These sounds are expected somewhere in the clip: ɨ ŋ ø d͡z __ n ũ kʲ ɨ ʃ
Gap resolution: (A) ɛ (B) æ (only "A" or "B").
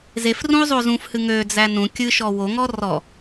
B